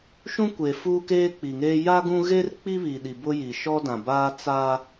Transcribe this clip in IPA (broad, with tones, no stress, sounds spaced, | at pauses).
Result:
ʃ ũ˦ kʷ e˨ f uː˦ k eː˦ k͡p i˨ ŋ eː˦ j a˦ ɡ ũ˦ ɣ eː˦ r k͡p i˦ β iː˨ ɗ i˨ b ʊ˦ j i˨ ʃ ɔ˦ d ã˨ b aː˦ t͡s a˦